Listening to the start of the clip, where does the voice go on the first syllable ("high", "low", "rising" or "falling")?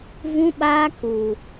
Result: high